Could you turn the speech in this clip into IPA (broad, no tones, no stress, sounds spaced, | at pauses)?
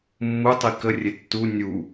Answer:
mː u tˤ i k ə rʲ e tː u nʲ u